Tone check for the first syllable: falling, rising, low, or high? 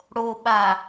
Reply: low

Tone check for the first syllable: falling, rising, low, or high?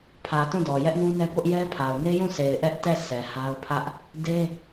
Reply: low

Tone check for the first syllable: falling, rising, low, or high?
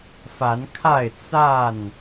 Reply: rising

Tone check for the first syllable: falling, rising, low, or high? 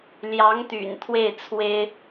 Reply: rising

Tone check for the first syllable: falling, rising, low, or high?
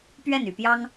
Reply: falling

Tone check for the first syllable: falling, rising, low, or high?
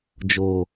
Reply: low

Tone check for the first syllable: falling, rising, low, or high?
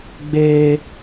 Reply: high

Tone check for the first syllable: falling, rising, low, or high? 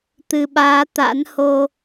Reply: low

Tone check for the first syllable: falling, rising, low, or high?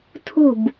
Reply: falling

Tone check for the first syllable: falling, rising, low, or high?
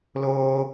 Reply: high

